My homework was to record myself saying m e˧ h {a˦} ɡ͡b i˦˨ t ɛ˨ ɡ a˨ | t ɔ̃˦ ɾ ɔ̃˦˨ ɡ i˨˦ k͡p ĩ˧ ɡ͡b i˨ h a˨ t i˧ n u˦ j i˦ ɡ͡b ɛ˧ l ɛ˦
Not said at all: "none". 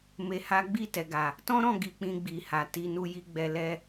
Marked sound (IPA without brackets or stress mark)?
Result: a˦